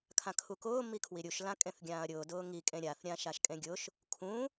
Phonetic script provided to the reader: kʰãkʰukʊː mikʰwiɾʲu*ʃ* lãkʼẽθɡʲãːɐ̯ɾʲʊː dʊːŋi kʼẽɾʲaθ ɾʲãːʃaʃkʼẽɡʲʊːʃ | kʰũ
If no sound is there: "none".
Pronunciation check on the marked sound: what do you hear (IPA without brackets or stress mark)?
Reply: ʃ